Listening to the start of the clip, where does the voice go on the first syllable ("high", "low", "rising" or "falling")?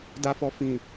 low